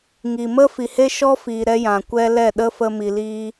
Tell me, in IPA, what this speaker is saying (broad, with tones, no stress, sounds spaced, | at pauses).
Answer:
ŋ i˨ m ə˦ f i˨ h e˦ ʃ ɔ˦ f iː˨ ɾ ɛ˧ j ã˨ kʷ ɛ˦ l ɛ˦˨ ɗ ə˦ f ə˦ m i˧ l iː˦